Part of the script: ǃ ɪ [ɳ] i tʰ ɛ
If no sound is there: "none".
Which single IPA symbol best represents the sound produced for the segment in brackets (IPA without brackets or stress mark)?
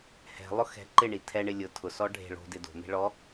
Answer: ɳ